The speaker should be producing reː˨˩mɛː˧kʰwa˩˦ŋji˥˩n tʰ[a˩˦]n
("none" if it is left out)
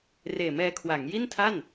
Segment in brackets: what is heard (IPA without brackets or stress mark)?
a˥˩